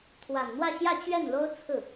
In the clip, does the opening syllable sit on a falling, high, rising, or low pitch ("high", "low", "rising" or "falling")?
low